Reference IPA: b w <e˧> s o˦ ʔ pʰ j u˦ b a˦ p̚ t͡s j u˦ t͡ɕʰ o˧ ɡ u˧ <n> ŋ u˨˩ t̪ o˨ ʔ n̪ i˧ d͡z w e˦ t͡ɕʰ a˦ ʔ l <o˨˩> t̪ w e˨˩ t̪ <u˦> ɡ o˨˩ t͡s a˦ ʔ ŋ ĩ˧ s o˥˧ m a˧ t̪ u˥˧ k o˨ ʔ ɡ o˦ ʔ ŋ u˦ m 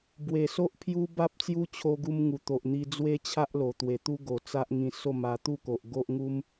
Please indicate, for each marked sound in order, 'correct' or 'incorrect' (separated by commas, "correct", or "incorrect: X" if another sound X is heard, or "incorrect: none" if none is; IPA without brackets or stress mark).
incorrect: e˨˩, incorrect: m, correct, correct